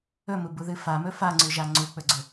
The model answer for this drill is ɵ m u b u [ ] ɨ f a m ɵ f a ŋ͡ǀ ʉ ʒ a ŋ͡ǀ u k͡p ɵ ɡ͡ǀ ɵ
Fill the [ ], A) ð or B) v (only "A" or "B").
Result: A